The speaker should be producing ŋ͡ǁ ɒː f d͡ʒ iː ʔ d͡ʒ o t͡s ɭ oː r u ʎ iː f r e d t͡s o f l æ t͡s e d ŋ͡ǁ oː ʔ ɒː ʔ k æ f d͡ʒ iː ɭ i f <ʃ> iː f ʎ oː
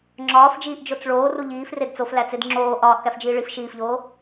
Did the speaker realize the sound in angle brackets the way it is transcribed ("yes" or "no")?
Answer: yes